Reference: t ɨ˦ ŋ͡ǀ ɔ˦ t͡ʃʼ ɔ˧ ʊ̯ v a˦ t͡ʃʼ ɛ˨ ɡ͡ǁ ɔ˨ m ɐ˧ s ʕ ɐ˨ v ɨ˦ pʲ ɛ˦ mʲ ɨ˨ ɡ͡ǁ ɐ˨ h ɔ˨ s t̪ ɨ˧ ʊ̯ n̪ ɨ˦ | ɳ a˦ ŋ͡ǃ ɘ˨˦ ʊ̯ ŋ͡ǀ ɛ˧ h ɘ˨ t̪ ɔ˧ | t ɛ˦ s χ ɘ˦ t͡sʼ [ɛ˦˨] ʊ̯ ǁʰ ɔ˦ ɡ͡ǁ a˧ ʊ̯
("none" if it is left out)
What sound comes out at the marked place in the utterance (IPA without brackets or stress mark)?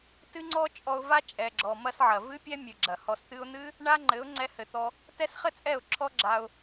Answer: ɛ˦˨